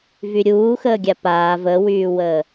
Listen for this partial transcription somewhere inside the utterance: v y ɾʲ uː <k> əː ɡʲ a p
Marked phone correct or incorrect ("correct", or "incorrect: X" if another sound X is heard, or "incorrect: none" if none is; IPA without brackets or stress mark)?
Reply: incorrect: x